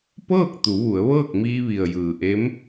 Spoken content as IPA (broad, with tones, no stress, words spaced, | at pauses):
pɤː˥˨k̚ t̪u˩˧ʋu˩˧ə̯ʋɤː˥˨k̚miː˧ ʋi˩ə̯jɯː˩ʔe˧˥m